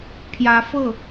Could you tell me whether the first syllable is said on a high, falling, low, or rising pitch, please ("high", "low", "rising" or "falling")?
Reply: rising